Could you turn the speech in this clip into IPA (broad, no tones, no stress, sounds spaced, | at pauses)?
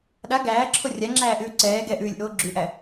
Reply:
ɗ a ɡ æː ǁʰ o rʲ a ŋ͡ǁ æː ʔ ʉː ǀ ɛː ɡ ɛ ʔ ʉː lʲ ʔ oː ɡ͡ǁ ʉ ʔ æ